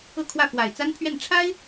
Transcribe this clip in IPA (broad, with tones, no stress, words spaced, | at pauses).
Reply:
ɤ˥˧kʰwä˥˩fwa˨˩ɪ̯ t͡sa˥npʰɥɛ˥˩n ʈ͡ʂʰa˥ɪ̯